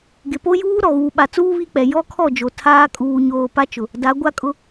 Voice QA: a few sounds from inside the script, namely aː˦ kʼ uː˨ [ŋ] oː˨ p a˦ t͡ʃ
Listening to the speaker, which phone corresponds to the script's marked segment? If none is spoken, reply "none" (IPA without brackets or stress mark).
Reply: ɲ